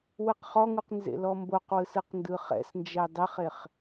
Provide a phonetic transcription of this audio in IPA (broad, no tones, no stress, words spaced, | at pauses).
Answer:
wɯqχɔŋuq nzḛlɔmboqwɯs ɯqndɯχɛ̰snd͡ʒɛ dˤɛχeχ